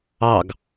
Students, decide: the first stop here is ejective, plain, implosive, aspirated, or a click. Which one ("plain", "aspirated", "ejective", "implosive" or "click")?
plain